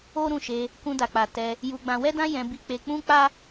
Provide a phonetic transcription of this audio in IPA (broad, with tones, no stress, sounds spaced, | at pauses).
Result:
o˦ ɾ ũ˦˨ ʃ e˧ | k ũ˧ d a˨ k͡p a˨ t ɛ˧ | j u˧ ɡ͡b ã˧ w ɛ˦ d ã˦ j ɛ̃˧ b i˧ k͡p e˧ k͡p ũ˦ k͡p a˦